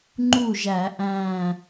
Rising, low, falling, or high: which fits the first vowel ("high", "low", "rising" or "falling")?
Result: falling